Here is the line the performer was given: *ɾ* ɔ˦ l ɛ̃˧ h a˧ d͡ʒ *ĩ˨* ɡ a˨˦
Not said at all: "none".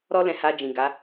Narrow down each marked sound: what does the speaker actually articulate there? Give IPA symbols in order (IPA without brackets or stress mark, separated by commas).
ɾ, ĩ˨